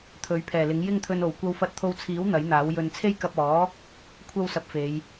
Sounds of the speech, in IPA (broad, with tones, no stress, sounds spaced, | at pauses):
t̪ʰ ɵ˨˥ ɥ pʰ ɛː˨˩ l ɪ˨˥ ŋ j ɪ˥ ŋ t̪ʰ ɵ˧ n o˨˩ w kʷ ɐ˧ w f ɐ˧ t̚ t̪ʰ o˧ w t͡sʰ iː˨˥ w n̪ ɐ˨˥ j n̪ aː˨˥ w j ɵ˧ n t͡sʰ e˥ j k ɐ˧ p̚ ɔː˨˥ | kʷʰ ɐ˥ w s ɐ˧ p̚ f e˨˧ j